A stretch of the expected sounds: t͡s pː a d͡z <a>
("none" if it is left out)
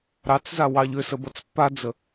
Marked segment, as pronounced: ə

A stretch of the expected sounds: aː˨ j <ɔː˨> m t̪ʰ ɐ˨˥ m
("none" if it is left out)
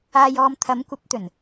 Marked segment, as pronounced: ɔː˨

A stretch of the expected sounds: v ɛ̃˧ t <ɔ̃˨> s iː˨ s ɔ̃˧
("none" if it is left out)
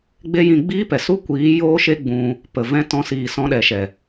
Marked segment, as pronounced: ɔ̃˧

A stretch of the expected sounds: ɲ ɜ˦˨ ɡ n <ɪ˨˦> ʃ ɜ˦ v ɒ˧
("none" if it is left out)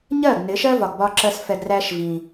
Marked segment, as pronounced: ɪ˨˦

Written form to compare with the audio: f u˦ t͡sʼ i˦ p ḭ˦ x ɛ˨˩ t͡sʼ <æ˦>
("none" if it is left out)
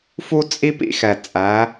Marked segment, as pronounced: æ˩˧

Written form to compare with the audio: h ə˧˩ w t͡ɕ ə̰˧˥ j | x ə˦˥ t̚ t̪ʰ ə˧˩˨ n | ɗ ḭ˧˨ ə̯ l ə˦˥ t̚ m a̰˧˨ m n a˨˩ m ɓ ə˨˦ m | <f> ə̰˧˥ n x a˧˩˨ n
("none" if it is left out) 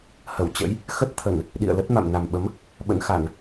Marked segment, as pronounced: ɓ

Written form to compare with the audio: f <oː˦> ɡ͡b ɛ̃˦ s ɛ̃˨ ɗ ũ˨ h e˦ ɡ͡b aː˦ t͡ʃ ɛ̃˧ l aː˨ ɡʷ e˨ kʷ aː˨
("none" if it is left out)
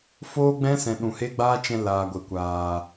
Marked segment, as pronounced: oː˦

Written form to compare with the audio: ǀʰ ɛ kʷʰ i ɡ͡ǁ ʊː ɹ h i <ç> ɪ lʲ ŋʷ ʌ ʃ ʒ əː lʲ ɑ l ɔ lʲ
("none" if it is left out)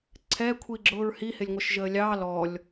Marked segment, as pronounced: h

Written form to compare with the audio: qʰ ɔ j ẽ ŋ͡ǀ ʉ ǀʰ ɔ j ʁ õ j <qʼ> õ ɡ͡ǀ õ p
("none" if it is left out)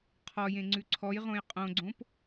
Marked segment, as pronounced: qʼ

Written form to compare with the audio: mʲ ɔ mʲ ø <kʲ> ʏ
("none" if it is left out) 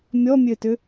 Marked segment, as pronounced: t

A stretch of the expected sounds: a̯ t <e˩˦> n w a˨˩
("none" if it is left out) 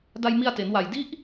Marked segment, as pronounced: e˩˦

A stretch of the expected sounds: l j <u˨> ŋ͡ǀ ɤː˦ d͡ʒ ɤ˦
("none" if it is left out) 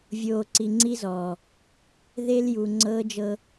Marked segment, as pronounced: u˨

